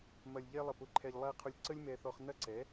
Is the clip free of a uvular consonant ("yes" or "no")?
no